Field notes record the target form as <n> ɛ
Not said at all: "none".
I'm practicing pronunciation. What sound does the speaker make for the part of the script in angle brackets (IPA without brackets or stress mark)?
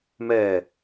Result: m